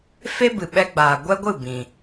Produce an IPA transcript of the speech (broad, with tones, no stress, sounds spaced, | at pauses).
f e˦ b ɨ˨ ɓ ɛ˧ ɡ͡b aː˨ ɡʷ ɛ˦ ɡʷ ɨ˦˨ b ĩ˨